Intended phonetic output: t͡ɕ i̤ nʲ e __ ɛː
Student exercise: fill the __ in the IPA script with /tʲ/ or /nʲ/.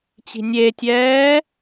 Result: tʲ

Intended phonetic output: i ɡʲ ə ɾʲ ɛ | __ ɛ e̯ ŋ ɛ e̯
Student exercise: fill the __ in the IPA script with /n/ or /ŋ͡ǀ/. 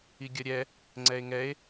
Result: ŋ͡ǀ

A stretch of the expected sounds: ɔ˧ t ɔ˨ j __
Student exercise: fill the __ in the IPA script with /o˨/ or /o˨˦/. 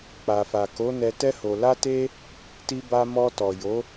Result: o˨˦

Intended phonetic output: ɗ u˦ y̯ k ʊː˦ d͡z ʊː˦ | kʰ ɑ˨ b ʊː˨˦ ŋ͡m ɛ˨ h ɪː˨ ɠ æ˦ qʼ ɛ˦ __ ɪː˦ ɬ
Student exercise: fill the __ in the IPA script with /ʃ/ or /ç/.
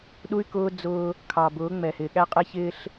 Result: ç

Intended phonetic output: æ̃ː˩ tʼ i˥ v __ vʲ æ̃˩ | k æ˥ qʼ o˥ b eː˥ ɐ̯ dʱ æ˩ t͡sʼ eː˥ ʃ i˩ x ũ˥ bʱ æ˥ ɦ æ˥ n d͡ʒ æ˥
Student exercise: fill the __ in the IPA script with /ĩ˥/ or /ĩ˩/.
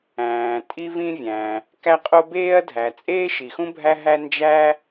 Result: ĩ˥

